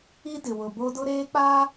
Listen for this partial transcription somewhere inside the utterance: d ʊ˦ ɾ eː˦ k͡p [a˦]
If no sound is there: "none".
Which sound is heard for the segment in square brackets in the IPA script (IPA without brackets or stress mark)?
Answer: a˦